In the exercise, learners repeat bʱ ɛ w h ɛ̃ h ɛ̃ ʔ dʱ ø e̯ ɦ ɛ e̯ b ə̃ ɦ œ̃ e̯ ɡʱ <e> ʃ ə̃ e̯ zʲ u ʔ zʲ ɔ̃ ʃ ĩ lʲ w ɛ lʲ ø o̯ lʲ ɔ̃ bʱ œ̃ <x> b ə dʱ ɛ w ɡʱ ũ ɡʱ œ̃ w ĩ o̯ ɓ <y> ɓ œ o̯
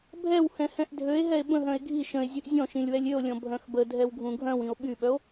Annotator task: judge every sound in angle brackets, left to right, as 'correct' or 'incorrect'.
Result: incorrect, correct, correct

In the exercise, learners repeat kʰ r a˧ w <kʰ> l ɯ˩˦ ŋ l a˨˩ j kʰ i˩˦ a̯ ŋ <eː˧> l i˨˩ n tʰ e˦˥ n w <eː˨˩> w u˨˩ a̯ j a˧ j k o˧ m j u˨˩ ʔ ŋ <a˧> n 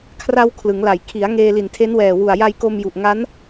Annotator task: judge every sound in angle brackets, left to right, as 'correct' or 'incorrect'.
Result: correct, correct, incorrect, incorrect

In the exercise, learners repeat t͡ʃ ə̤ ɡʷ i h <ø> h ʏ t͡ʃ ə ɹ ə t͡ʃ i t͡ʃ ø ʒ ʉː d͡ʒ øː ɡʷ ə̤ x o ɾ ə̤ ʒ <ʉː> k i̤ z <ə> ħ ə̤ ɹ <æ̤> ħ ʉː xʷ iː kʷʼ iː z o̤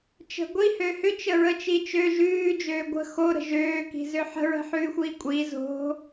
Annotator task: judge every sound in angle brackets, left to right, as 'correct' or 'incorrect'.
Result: correct, incorrect, incorrect, incorrect

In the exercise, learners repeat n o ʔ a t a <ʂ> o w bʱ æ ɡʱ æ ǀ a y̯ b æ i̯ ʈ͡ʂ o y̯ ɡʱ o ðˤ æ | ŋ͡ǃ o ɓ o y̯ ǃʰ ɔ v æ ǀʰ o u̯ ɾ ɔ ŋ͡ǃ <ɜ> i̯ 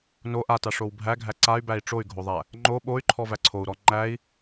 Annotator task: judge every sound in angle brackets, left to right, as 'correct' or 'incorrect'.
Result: correct, incorrect

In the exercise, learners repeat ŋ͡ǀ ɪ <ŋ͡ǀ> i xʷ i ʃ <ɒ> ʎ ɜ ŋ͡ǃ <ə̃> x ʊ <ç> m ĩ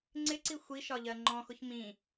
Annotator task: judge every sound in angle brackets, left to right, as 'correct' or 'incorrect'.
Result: incorrect, correct, incorrect, correct

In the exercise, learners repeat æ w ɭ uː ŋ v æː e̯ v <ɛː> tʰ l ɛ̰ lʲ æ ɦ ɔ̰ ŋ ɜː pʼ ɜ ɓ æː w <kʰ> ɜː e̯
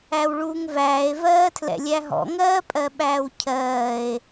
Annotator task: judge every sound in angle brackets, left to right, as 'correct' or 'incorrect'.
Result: incorrect, incorrect

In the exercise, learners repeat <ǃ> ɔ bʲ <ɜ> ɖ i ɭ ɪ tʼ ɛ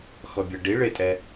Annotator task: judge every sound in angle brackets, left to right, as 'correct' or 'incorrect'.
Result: incorrect, correct

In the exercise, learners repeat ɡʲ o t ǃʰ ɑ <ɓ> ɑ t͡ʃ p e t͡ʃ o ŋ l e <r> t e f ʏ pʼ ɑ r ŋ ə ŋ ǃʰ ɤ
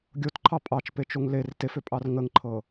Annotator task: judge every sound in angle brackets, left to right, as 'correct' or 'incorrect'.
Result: incorrect, correct

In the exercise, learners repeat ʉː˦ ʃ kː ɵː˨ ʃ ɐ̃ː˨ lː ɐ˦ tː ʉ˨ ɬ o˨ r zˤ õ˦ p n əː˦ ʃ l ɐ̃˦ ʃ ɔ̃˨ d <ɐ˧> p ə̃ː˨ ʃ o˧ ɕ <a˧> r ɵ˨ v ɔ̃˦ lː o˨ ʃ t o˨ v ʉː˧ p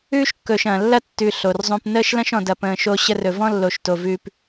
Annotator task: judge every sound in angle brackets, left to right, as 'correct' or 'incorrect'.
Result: incorrect, incorrect

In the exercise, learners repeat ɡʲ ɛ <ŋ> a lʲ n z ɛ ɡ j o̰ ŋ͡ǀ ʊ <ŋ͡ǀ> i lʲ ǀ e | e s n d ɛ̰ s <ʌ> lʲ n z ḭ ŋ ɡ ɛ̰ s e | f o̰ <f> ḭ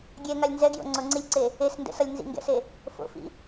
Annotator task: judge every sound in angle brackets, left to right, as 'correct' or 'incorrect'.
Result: correct, correct, correct, correct

